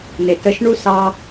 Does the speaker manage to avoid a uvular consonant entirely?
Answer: yes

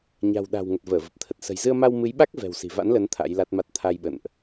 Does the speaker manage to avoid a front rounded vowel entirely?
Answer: yes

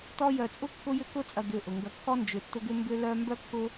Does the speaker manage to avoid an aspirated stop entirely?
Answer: yes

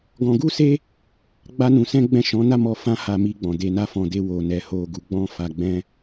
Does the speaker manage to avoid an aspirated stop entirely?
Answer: yes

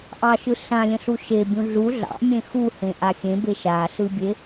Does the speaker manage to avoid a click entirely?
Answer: yes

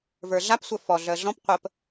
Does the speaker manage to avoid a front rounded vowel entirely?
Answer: no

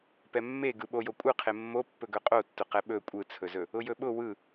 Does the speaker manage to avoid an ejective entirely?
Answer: no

